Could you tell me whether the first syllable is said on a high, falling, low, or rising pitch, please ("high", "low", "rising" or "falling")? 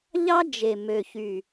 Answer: high